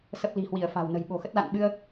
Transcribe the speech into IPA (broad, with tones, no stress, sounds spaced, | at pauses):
s ə˦˥ p̚ l i̤˨˩ h w i˧˩ ə̯ f a̤˨˩ w n ə̤˨˩ j ɓ o̤˨˩ x ə˦˥ t̚ l a̰˧˨ n ɓ ɨ˧ ə̯